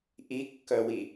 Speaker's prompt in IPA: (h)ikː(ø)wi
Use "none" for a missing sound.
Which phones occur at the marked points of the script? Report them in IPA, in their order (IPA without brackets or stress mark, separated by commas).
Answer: ʔ, œ